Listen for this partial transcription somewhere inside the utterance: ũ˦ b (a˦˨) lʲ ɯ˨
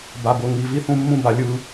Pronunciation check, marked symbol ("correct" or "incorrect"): incorrect